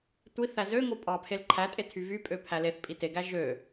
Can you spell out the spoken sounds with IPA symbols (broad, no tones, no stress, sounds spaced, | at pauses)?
tʷ i θ æ z ø ŋ o pʼ ɑ pʰ e l ǃʰ æ tʼ e tʰ y v y pʼ ø pʰ æ l e θ pʼ i t e ɡ æ ʒ ø